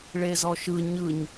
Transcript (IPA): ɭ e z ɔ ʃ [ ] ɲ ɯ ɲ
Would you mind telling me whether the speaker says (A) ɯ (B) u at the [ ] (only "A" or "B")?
A